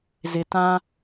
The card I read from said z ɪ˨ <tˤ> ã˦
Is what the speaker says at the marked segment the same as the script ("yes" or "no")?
no